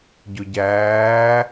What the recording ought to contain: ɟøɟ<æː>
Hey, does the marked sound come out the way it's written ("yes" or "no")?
yes